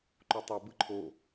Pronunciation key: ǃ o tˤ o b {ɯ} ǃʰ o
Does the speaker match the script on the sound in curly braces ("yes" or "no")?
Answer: yes